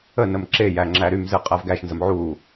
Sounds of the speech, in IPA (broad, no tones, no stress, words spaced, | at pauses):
ənəm ǁejæ ŋ͡ǁæɾymzɨ qʼævɡæʃnzəm ʕu